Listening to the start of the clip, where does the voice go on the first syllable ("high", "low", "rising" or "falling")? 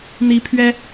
rising